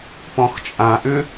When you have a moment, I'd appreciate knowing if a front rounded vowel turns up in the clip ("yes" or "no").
yes